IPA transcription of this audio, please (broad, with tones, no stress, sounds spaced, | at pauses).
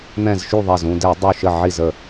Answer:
n̪ ɛ̃˧˩ z ʃ y˧˩ ðˤ ɛ˧˩ z ũ˧˩ d ɛ˧˩˧ dˤ u˧˩ ʃ ə˧˩ ʕ i˧˩ z ə˧˩